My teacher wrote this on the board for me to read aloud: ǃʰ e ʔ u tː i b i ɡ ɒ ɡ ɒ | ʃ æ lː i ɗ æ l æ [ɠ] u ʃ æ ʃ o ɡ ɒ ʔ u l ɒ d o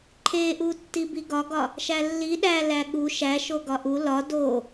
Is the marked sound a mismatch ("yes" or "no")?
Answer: no